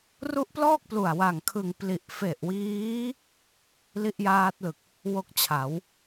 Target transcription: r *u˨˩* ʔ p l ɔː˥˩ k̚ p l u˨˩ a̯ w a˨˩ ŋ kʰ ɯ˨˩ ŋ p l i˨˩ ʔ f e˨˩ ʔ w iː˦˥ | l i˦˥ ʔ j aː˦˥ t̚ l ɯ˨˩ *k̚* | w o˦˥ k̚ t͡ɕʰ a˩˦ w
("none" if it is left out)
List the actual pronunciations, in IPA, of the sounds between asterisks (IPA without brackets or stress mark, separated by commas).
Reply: u˦˥, k̚